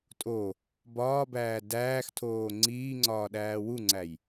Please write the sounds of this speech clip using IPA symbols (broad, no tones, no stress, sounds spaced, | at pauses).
tʼ o | b ɒː b æː d æː x tʰ oː ŋ͡ǀ iː ŋ͡ǀ ɒː ɗ æː w u ŋ͡ǀ æ j